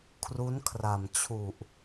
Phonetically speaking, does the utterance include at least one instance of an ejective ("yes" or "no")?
no